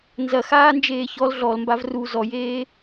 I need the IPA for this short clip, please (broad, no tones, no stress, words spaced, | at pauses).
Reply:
nzɐxaːnd͡ʒeː çɔl ɮɔlmbav ru zɔjeː